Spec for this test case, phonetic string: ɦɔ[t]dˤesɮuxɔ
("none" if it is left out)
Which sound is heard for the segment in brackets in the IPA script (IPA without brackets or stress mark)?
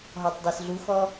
tˤ